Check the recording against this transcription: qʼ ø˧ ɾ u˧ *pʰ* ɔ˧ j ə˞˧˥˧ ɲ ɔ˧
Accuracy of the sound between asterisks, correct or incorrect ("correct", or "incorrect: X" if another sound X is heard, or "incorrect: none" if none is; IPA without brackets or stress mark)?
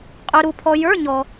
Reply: correct